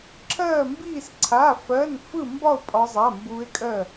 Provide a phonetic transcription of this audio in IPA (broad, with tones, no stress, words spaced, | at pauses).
ǁʰɜː˥˧mbiː˥˧sǀʰa˧˥˧ fɜ˧˥˧nfɯ˥˧mbɒ˥˧o̯ pʼɒ˦˥zˤa˧˥˧mbuː˦˥e̯kʼɜː˥˧